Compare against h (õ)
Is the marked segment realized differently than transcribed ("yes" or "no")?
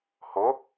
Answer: yes